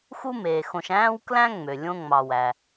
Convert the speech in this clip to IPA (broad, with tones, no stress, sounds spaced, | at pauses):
x u˥ m eː˩ x õ˨ ʃ æ̃ː˥ w k l æ̃˥ ŋ͡m ø˩ lʲ õ˦ ŋ͡m ɑ˨ w æ˩